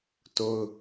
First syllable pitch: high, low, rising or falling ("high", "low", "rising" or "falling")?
high